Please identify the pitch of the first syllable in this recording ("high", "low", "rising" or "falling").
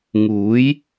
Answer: rising